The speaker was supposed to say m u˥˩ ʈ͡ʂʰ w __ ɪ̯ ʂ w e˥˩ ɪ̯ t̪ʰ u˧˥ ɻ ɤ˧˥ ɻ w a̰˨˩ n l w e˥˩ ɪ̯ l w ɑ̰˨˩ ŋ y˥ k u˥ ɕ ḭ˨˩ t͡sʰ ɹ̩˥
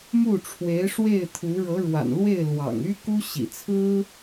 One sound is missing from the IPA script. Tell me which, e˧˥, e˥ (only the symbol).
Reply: e˧˥